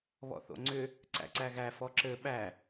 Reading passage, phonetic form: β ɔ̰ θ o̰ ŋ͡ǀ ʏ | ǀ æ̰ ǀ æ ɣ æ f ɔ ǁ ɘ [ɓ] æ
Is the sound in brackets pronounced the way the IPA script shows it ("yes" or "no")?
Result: yes